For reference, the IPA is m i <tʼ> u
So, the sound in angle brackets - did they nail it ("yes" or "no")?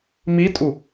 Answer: yes